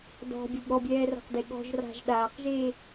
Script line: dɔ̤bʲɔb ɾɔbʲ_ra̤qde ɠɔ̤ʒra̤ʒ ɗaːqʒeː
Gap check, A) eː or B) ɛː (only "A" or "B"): B